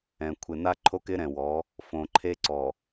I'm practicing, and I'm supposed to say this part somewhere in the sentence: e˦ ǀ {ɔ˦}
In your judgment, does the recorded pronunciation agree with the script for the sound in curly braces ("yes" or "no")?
no